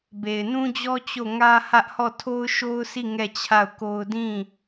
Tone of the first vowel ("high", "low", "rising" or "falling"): low